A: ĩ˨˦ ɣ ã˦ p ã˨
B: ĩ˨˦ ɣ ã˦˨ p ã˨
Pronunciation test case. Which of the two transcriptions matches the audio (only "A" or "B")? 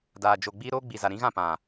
B